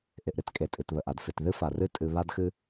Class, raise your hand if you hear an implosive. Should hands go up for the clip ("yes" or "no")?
no